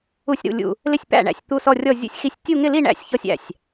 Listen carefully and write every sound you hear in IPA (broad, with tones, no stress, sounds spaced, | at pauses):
u˥˧ sʲ ɾ ṵ˥˧ lʲ ṵ˥˧ | l ɪ˥˩ sʲ p æ̰˥˩ ɳ æ̰˥˩ sʲ t̪ u˥˧ s ɔ˥˧ rʲ ɔ˥˧ zʲ ṵ˥˧ sʲ x i˥˧ sʲ tʲ u˥˧ ŋ ɪ˥˧ l i˥˧ ɳ æ̰˥˧ sʲ ç ɔ˥˧ sʲ æ̰˥˩ sʲ